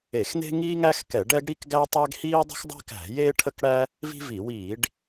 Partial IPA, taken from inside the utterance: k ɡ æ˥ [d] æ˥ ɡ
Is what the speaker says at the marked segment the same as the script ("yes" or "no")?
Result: no